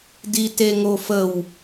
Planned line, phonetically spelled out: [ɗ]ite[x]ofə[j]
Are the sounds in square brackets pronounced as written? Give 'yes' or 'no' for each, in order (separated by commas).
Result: no, no, no